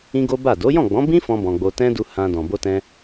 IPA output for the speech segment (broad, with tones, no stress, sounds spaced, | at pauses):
ĩ˦ ɡ o˦ b a˦˨ d o˨˦ j ɔ̃˦˨ ɡ͡b ɔ̃˨˦ b ĩ˦ f ɔ̃˦ b ɔ̃˧ ɡ͡b o˧ t ɛ̃˦ d u˧ h ã˧ d ɔ̃˨ b o˧ t ɛ̃˧